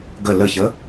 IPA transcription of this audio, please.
ɡ ə l ə ç ə

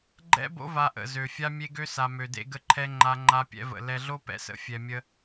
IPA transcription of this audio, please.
ɡ͡ǃ ɛ̰˦ b o̰˦ v a˦ ʔ ə̰˦˨ z ø˨ fʲ a˦ mʲ e˦ ɡ ø˦ s a˨ m ø˨ d ḛ˦ ɡ ə˦ ǃʰ ɛ˦ ŋ͡ǃ a˦ ŋ͡ǃ a˦ pʲ ɛ̰˦ v ə̰˨ l ɛ˨ ɮ o˦ p ɛ̰˨ s ə̰˨ fʲ ɛ˨ mʲ ə˦

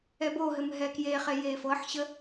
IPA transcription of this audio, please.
ɛ b o ɦ ɘ m ɦ ɛ k j e χ e j e f ɤ ħ ɕ ə

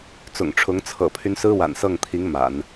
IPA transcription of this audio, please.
t͡s ʊ̰˨˩ ŋ ʈ͡ʂʰ ʊ˧˥ ŋ t͡sʰ ɤ̰˨˩ pʰ y˦ n s ɹ̩˥ w a̰˨˩ n s ɤ˥˩ ŋ t̪ʰ i˧˥ ŋ m a̰˨˩˦ n

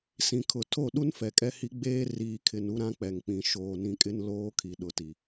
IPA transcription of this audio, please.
s ĩ˨ kʰ ʊ˨ tʰ o˦˨ ɗ u˦ n f ɛ˨ kʼ ɛ˦ h i˦ ɡ͡b eː˦ r iː˨ kʰ ɪ˨ n u˦ ɾ ã˦ k͡p ɛ˨ ŋ k͡p ĩ˨ ʃ oː˨ n ĩ˨ kʼ ɪ˦ n l oː˦ kʰ i˨ ɗ ʊ˨ t i˨

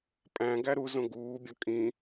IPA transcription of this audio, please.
pʼ æ̃ ɡ æ ɾ u z õ ɡ uː bʲ ɒ kʼ ĩ

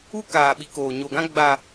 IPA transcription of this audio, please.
u˦ k aː˨ ɓ i˨˦ k oː˨ ɲ o˨ ɡ ã˦ ɡ͡b a˨

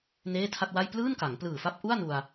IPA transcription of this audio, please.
n eː˥˩ tʰ a˥˩ t̚ w a˥˩ j p l ɯː˥˩ n k a˩˦ ŋ p l ɯː˨˩ f a˦˥ p̚ ʔ u˥˩ a̯ n u˧ a̯

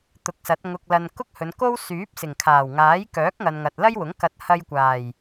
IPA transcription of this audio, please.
t̪ ʊ˨˥ k̚ s ɐ˨˥ t̚ ŋ ʊ˧ k̚ l ɐ˧ n k ʊ˥ k̚ h ɵ˨˧ n k o˥ w s yː˨˥ p̚ s ɪ˨˩ ŋ kʰ aː˨˩ w ŋ aː˨˥ j k œː˨˥ k̚ ŋ ɐ˨ n ŋ ɐ˨ t̚ l ɐ˥ j w ʊ˨˥ ŋ k ɐ˧ t̚ h ɐ˧ j kʷ aː˨˩ j

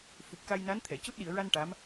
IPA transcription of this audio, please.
f u˨˩ p̚ k a˧ j n a˧˥ n t̪ʰ ɛ˨˩˨ c u˦˥ t̚ ɗ i˨˩˨ ə̯ ɹ a˧ n ʈ a˧˥ m

